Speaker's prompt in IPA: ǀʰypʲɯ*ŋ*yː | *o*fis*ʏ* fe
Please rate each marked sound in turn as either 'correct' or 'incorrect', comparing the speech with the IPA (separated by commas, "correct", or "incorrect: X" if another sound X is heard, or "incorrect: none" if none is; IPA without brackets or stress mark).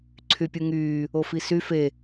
correct, correct, incorrect: y